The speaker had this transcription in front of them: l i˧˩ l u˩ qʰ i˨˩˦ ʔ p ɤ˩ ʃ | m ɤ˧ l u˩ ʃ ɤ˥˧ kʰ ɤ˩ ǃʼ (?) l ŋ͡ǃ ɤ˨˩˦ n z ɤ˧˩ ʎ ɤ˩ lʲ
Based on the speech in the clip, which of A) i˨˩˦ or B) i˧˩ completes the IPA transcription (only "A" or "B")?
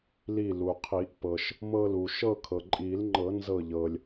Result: A